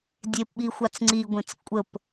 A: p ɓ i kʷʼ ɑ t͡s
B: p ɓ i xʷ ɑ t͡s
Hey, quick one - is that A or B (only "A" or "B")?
B